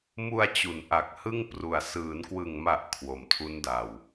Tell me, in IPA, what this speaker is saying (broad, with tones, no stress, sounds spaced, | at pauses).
m u˧ a̯ t͡ɕ u˩˦ n ʔ a˨˩ k̚ h ɯ˥˩ ŋ p r u˨˩ a̯ s ɯː˩˦ n k w ɯ˨˩ ŋ m a˨˩ ʔ kʰ w o˨˩ m tʰ u˦˥ n d a˨˩ w